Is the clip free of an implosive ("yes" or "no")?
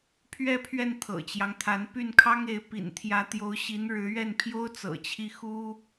yes